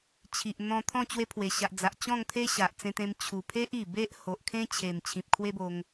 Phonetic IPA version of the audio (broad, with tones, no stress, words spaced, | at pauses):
t͡ɕʰi˨ʔn̪ɔ̃˧ t̪ʰɔ̃˥˧ t͡ɕwe˧pʰwe˨˩ɕa˨ʔd͡za˨ʔ t͡ɕɔ̃˥˧ŋt̪ʰe˦ ɕa˨ʔt͡sẽ˧t̪ẽ˧m t͡ɕʰu˨˩pʰe˦ʔ i˨˩be˦ʔ ho˨ʔkʰẽ˦t͡ɕʰe˨˩m t͡ɕʰĩ˨p̚kʰwe˦bo˧ŋ